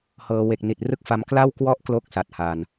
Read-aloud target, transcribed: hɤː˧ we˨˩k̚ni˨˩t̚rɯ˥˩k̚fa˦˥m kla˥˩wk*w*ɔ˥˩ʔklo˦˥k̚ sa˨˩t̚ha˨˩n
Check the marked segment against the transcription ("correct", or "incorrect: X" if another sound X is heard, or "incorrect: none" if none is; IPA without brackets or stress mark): correct